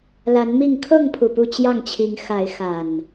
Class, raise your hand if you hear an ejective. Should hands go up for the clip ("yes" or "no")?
no